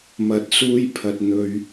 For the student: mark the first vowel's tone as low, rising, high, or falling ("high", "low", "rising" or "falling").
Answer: rising